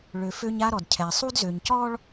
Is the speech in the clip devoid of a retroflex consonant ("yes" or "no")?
no